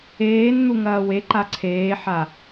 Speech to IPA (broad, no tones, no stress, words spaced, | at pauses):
eːnn̪uŋɐː weǃa ǀʰeːħa